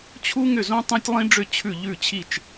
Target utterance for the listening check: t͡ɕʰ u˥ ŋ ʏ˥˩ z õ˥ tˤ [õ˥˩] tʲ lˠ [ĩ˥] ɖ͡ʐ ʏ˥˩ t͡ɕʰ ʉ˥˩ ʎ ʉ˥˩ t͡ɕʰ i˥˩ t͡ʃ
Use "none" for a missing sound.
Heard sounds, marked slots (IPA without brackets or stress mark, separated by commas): õ˥, ĩ˥